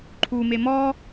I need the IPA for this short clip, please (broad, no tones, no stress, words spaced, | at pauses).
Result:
ǃʰume mɔ